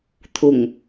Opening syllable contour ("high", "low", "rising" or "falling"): low